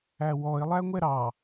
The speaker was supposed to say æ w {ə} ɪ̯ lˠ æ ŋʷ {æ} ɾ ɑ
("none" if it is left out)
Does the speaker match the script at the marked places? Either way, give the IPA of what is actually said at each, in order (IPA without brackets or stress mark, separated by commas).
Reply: ɔ, ɛ